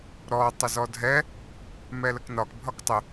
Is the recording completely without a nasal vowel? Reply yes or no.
yes